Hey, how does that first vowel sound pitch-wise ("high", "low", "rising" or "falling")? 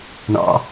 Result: high